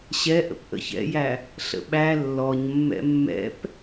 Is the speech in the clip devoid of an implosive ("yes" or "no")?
no